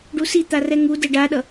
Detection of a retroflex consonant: present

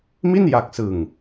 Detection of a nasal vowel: absent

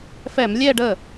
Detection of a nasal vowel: absent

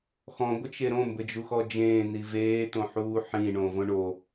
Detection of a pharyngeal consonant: present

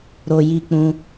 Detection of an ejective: absent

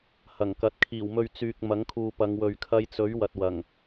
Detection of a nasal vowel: absent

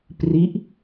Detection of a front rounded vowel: absent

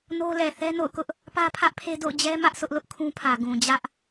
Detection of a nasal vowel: present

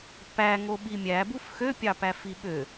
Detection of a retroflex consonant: absent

